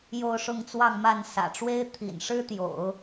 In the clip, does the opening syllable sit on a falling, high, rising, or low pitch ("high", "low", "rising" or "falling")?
falling